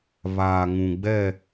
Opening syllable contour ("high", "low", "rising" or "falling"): low